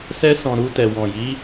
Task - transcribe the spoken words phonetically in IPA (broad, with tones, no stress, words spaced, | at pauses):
sɛ˧sɔ̃˨ ɾu˧tɛ˨ wɔ̃˨ji˨˦